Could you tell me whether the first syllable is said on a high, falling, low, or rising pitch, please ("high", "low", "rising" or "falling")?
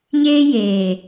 high